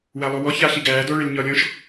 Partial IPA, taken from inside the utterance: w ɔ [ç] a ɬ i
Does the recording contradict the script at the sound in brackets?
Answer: no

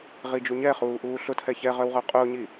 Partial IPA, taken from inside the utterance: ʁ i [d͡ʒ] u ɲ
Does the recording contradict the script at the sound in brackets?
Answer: no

